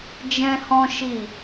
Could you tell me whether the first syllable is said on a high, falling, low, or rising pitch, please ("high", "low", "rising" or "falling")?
high